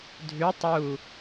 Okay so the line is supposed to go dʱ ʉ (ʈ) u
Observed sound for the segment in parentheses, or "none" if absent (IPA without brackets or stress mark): tˤ